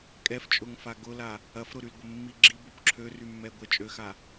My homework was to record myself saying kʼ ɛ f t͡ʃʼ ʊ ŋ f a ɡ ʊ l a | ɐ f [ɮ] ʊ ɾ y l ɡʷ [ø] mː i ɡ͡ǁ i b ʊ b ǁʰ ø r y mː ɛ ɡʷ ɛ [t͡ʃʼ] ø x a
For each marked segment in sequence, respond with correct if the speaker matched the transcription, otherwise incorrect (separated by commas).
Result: incorrect, incorrect, correct